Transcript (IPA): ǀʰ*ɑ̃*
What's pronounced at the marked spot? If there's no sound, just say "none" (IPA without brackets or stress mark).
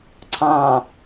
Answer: ɑ̃